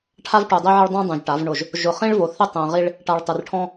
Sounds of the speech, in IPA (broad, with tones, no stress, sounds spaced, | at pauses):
ʈʰ a˦ v ʈ u˨ dˤ i˦ ʕ ɪ˦ ɭ dˤ ũ˦ dˤ ũ˨ ʒ ʈ a˨˦ v ɳ ʊ˦˨ ʒ | ʒ ʊ˨ χ ĩ˦ ɭ v o˨ θ ɪ˦ tˤ ɛ̃˨ ʁ i˦ ɭ | ʈ a˨ ɭ tˤ ɪ˨ r ʈʰ ɔ̃˦